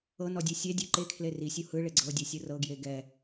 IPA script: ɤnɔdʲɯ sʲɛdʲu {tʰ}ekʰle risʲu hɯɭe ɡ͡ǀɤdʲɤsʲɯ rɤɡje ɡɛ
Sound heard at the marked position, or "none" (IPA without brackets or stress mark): ǃ